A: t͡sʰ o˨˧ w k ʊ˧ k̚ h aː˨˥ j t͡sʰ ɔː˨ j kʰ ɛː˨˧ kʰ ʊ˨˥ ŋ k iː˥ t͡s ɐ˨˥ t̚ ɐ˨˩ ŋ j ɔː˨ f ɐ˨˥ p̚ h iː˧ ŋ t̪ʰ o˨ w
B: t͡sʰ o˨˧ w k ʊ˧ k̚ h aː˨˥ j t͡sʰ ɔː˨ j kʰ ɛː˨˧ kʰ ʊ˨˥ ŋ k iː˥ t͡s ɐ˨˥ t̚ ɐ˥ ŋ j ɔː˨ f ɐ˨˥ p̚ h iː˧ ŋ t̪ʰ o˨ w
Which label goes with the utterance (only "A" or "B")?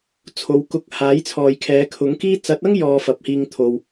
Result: B